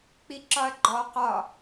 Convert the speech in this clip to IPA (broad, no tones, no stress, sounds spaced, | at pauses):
k͡p i ǁ ɒ ɐ̯ ɡ͡ǃ ɔ q ɒ